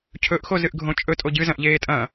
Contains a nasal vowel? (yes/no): yes